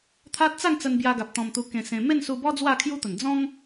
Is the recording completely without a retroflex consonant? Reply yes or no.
yes